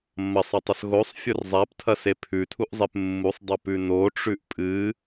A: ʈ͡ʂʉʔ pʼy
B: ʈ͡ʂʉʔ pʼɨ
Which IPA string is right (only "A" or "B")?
B